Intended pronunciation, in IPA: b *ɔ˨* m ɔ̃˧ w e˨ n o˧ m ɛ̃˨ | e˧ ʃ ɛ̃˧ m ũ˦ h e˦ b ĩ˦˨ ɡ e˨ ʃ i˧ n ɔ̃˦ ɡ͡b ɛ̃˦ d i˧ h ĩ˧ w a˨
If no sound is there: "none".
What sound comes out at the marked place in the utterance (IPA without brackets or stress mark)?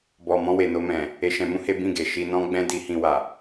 ɔ˨